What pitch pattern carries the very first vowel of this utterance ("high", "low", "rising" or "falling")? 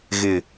low